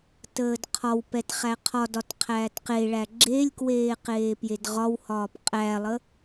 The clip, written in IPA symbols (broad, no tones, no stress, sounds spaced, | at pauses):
t əː d qʰ ɒ w p ɛ t χ æ qʰ ɒ d ɒ t qʰ æː t q e ɭ æ ɡ͡ǁ e lʲ k w eː q eː p j e d ʁ ɒ w h ɒː p qʼ æ lˠ ə